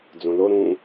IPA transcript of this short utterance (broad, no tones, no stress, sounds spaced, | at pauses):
d͡z õ l o ɾ ũ